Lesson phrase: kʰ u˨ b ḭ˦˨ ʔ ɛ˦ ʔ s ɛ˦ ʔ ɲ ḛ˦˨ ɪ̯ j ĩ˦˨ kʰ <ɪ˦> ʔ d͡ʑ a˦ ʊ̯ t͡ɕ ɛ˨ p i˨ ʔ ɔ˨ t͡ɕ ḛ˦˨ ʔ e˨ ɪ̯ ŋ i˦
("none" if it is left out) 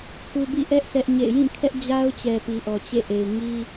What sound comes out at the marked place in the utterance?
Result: ɛ˦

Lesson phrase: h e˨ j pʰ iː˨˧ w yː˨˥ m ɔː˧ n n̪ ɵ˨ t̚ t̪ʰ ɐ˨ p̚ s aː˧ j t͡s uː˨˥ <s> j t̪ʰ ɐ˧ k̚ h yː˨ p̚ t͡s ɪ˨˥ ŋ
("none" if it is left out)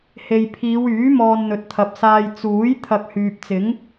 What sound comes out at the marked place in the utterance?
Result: none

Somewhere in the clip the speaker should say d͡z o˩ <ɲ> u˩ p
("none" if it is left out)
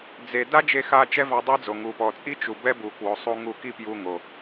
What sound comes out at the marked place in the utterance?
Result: ŋ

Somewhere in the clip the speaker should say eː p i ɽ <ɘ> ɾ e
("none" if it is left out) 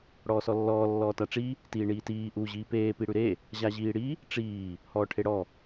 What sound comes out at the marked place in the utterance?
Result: ʉ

